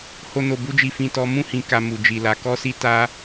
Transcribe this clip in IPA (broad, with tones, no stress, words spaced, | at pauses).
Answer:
ho˨no˨bu˧d͡ʒi˨ fĩ˨tɔ˨˦ mũ˦˨hĩ˨ka˨ mu˨d͡ʒi˨la˨˦ kɔ˦si˦ta˦